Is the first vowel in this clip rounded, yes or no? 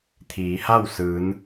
no